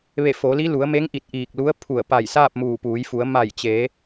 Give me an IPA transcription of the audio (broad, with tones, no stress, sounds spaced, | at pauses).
ʋ e˧˩ f o˩˧ l i˧˥ l u˩˧ ə̯ m e˧˥ ŋ ʔ i˧˩ t̚ ʔ iː˧˩ k̚ l u˧˥ ə̯ pʰ u˧˩ ə̯ p a˧˩ j s aː˥˨ p̚ m uː˧˩ p uː˩˧ j f u˩˧ ə̯ m a˧˩ j t͡ɕ e˩˧